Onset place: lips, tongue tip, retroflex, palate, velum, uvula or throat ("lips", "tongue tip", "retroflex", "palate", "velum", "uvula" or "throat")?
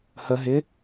throat